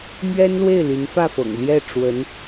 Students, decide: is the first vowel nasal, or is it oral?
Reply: oral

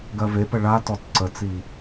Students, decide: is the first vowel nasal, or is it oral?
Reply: oral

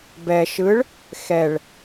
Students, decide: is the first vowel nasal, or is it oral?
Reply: oral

